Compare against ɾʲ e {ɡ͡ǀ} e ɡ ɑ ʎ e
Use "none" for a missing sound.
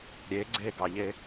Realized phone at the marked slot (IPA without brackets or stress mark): ɡ͡ǀ